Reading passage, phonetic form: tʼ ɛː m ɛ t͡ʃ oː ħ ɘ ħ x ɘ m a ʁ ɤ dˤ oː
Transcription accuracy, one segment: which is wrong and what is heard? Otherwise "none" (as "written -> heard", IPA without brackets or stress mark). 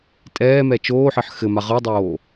none